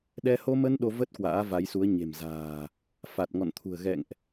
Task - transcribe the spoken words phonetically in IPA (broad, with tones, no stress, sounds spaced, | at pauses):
ɗ ɛ˧ h o˧ m ə˧ n ɗ o˧ v ə˦˥ t̚ k w a̰ː˧˥ v a˨˦ j s u˨˦ ə̯ ɲ e̤˨˩ m z a̤ː˨˩ | f a˨˩ t̚ ŋ ɔ̰˧˨ n t̪ʰ ṳ˨˩ ə̯ ɣ ɛ̰˧˨ ŋ ʔ